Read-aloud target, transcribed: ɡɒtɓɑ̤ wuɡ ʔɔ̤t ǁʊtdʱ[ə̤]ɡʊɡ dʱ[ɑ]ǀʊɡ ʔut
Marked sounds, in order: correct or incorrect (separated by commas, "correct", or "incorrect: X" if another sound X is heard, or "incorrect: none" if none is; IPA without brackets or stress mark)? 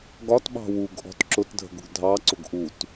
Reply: correct, correct